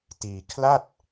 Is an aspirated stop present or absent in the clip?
present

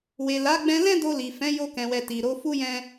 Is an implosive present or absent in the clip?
absent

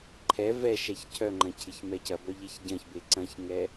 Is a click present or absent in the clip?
present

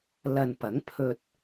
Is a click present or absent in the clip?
absent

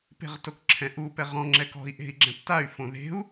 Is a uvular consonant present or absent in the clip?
present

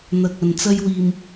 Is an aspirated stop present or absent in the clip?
absent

